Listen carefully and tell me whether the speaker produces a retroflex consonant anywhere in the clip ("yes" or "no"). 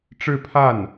yes